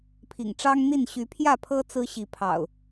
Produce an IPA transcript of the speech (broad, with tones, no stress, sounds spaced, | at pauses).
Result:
pʰ ḭ˨˩ ŋ ʈ͡ʂ ɑ˦ ŋ n̪ i˥˨ n ɕ y˨˦ pʰ j ä˥˨ pʰ ɤ˦ t͡s ɹ̩˦ ɕ i˨˦ pʰ ɑ̰˨˩ ʊ̯